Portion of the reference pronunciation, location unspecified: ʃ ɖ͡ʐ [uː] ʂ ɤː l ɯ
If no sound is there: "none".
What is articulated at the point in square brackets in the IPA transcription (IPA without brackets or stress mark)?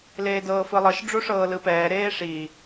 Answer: u